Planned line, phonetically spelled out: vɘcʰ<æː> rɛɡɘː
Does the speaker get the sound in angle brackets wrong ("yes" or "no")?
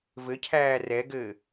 no